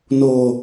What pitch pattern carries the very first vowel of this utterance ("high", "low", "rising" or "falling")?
low